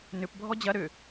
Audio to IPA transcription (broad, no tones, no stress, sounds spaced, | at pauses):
n ʏ p bʱ ɔ d͡ʑ ɐ ɾ ʏ